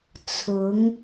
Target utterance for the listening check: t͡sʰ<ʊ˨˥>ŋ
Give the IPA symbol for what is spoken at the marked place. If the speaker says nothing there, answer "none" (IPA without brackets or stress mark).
ʊ˨˥